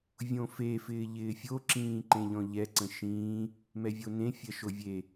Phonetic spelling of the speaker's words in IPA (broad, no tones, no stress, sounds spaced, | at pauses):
vʲ õ f e f ɪː ʎ ɪː fʲ o ǁ ĩː ǃ ẽ ʎ ɔ̃ ʎ ɛ ǀ ə̃ ʃ ĩː | m ɛ vʲ o n ẽ fʲ ɜ ʃ o vʲ e